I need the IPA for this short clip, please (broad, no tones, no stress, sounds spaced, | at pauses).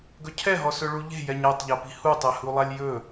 ɡ ɵ cʰ ɛ ɦ ɔ s ɵ ɭ u ʎ e̤ j ɛ ɲ a tˤ ʎ a p i̤ h u tˤ ɛ h u lˠ a lʲ j ɵ